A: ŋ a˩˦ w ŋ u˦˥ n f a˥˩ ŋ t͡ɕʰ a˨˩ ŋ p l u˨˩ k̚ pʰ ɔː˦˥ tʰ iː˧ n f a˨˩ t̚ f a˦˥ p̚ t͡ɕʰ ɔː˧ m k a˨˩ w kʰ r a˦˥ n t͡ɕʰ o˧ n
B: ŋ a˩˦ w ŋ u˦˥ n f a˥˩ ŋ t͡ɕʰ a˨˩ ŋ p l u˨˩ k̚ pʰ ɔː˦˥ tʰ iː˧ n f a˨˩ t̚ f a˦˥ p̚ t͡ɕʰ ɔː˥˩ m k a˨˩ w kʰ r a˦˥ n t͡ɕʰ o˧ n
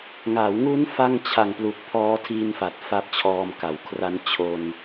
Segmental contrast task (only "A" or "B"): A